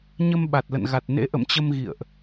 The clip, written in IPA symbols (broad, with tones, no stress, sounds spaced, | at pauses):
ɲ ə˧ m ɓ a˨˩ t̚ l ə̰˧˨ n ɣ a˨˩ t̚ n ḛ˧˥ ʔ ə̰˧˨ m t͡ɕ ə˧ m ɣ ḭ˧˨ ə̯ ʔ